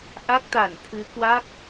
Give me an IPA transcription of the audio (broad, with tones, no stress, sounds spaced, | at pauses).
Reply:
ʔ a˦˥ k̚ t̪ a˧˩ n t̪ʰ ɨ˨˦ k w a˦˥ k̚